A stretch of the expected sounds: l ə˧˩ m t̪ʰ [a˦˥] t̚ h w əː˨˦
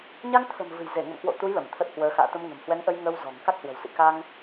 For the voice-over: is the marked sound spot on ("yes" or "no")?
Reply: no